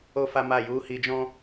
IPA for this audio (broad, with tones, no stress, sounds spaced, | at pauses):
o˦ f a˦ m a˦˨ j u˨˦ h i˧ d͡ʒ ɔ̃˦